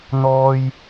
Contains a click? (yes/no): no